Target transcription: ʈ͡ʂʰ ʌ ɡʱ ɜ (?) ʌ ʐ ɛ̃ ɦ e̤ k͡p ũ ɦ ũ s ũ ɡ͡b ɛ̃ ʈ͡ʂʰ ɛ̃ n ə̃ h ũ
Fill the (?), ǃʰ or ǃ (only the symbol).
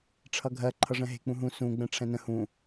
ǃʰ